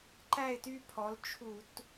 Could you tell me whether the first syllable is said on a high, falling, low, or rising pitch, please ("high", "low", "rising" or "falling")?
falling